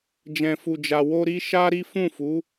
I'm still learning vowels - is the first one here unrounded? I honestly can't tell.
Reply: yes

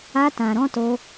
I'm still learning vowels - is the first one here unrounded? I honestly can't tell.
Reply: yes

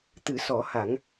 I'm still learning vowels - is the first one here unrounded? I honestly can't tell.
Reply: yes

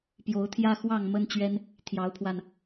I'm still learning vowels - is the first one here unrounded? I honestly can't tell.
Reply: no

